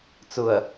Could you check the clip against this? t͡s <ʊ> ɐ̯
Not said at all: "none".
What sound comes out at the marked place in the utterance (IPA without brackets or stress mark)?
ʊ